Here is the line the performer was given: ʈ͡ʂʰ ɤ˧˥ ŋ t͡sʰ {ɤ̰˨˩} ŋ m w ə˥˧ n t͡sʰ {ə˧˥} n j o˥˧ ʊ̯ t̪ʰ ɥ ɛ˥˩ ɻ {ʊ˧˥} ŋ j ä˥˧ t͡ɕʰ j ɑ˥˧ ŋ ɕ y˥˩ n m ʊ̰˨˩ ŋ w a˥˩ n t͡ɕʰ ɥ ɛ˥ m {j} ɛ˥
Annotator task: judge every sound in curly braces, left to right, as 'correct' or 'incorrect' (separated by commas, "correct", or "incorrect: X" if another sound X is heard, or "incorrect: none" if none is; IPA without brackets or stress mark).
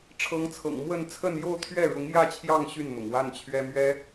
correct, incorrect: ə˥˧, correct, incorrect: ɥ